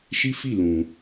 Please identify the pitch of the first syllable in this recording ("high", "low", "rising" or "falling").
high